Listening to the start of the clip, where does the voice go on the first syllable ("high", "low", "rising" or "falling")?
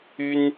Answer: high